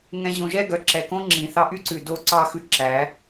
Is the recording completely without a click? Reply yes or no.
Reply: no